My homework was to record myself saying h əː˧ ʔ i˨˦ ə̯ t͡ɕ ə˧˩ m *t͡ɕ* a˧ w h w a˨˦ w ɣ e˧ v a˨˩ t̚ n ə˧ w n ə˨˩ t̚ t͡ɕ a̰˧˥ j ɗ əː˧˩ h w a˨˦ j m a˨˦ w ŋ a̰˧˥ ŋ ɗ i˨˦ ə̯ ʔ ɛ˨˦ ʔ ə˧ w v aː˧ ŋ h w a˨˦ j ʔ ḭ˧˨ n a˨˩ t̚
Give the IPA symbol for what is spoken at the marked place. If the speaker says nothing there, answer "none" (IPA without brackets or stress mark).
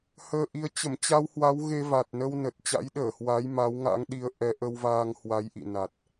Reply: t͡ɕ